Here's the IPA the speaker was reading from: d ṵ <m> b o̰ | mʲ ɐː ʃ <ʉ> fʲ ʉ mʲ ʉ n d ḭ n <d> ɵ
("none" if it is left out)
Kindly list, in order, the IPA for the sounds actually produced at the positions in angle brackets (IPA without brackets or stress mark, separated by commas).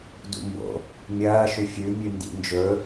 m, ʉ, d͡ʒ